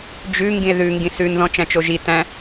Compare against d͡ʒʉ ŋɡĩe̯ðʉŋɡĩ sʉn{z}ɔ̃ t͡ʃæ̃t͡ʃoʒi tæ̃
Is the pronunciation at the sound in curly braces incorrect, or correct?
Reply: incorrect